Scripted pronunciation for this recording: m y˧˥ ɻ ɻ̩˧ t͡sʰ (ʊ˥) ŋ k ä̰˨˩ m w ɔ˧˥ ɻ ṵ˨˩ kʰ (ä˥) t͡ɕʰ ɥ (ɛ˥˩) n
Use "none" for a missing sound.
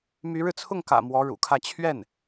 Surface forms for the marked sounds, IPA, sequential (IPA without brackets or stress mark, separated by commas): ʊ˥˩, ä˥˧, ɛ˥˩